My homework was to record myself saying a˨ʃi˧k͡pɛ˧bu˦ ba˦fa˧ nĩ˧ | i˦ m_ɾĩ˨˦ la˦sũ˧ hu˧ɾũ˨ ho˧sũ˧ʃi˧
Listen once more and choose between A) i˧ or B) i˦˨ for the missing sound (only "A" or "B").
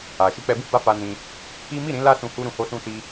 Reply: B